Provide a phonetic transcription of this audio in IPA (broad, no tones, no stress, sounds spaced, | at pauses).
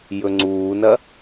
j ɵ ŋ͡ǀ uː n ɐ